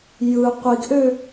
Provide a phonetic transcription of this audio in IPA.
j ɯ qʷ i ɡ ʔ ø

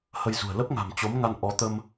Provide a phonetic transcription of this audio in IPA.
h ə˧ j z ṳ˨˩ ə̯ l ə˦˥ p̚ ŋ a̤˨˩ m t͡ɕ o˨˦ m ŋ a˧ n ʔ ɔ˨˦ t̪ ə˧ m

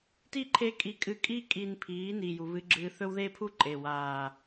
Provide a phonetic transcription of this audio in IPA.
t i˦ ǃʰ e˦ kʼ i˧ kʼ ɨ˧ kʼ i˦ kʼ i˧ n pʰ iː˨˦ n iː˨ j u˨ β ɨ˧ ɡ͡ǁ ɨː˧ θ ɵ˦ w ð e˦ pʰ u˦ ǃʼ e˨ w aː˨

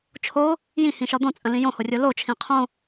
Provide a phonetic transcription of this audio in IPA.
t͡ʃʰ o | j ĩ h ĩ ʃ ɒ d̪ õ t͡sʼ ə̃ l ĩ j õ h o rʲ o l o t͡ʃʰ ĩ qʰ õ

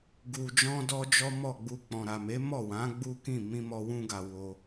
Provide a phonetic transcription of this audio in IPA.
ɡ u˧ d͡ʒ ɔ̃˦ d ɔ˦ d͡ʒ ɔ˦ m ɔ˦˨ ɡ͡b u˧ k͡p ɔ̃˨ ɾ a˨ m e˨˦ m ɔ˦˨ w ã˨˦ ɡ͡b u˦ k ĩ˦˨ m ĩ˧ m ɔ˧ w ũ˧ ɡ a˨ w o˧

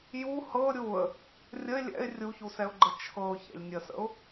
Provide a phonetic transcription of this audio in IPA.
j u h ɤ ɾʲ u ə̯ | rʲ ə ɪ̯ lʲ ɛ̰ ɪ̯ rʲ u ç u s ɛ ʊ̯ ɡ͡ǃ ə t͡ʃʰ ɤ ʊ̯ ç ɛ̰ lʲ nʲ ə s ə̰ ʊ̯

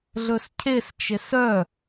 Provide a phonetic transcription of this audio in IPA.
ɮ ɵ s cʰ e s t͡ʃ e s œ

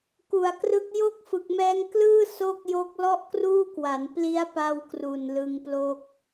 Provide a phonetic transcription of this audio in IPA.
k u˨˩ a̯ k r ɯ˦˥ k̚ j o˥˩ k̚ f ɯ˨˩ k̚ m ɛː˦˥ ŋ k l ɯː˥˩ s o˥˩ k̚ j o˦˥ k̚ l ɔ˥˩ ʔ k r uː˥˩ k w a˩˦ n p l i˦˥ a̯ p a˧ w k r u˨˩ n l ɯ˧ ŋ p l o˥˩ k̚

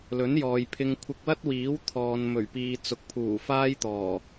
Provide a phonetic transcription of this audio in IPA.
l ɵ˨˥ n j ɔː˨ j pʰ ɪ˧ ŋ kʷʰ ɪ˧ k̚ w ɐ˥ t̚ w iː˨˥ w t̪ʰ ɔː˨ n m ɵ˨˩ ɥ p iː˨ t͡s ʊ˨ k̚ pʰ uː˨˩ f aː˥ j t̪ ɔː˨˩

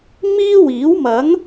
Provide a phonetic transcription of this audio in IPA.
m iː˥ w iː˨˥ w m ɐ˨˥ ŋ

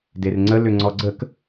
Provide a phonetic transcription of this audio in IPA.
d e r ŋ͡ǀ ə l ʏ ŋ͡ǀ ɔ ɡ͡ǀ ə k

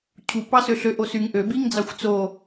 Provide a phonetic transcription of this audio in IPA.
cʰ u p ɑ s ø ɬ ø ʔ o s y ŋ ʔ ø b i ŋ d͡z ɑ xʷ t͡s o

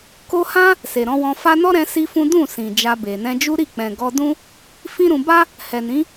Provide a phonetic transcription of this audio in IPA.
k o˦ h ã˦ | s e˨ ɾ ɔ̃˨˦ w ɔ̃˧ f a˦ n ɔ˦ ɾ ɛ̃˧ s i˦ f ũ˦ d ũ˦˨ s ĩ˨ d͡ʒ a˧ b e˨ n ɛ̃˧ d͡ʒ u˦ ɾ i˦˨ k͡p ɛ̃˨ ɡ ɔ˧ d ũ˦ | f ĩ˦ ɾ ũ˧ b a˦ | h ɛ˨ n ĩ˨˦

